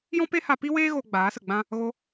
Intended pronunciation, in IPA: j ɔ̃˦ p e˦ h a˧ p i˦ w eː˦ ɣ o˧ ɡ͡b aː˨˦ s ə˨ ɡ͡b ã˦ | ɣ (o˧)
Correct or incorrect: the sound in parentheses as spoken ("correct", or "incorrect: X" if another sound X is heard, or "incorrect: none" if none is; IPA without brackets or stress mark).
correct